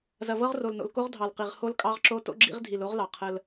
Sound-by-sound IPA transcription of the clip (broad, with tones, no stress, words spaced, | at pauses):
zɐ˨vɤ˦ʁro˨lno̰˨l ko˦ʁdʱɑ˨lqi˨ʁ ho˦lkʼɑ˦ʁǁo˦ to̰˦ɡ͡ǁḭ˦ʁ dʱi˨lo˦ʁlɑ˨ qʰə˦l